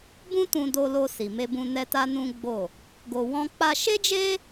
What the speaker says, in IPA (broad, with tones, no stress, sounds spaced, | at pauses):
b ũ˦ t ũ˧ d o˧ l o˧ s i˨ m e˧ b ũ˧ n ɛ˦ t a˦ n ũ˦ ɡ͡b o˦˨ | ɡ o˧ w ɔ̃˦ k͡p a˧ ʃ e˦ d͡ʒ e˦